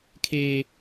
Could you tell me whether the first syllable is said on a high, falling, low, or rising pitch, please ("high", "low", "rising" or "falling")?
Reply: high